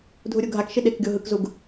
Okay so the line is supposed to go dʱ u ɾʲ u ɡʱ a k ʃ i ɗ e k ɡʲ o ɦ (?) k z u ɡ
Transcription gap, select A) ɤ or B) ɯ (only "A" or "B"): B